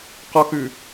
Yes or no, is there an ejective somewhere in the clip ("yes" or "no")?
no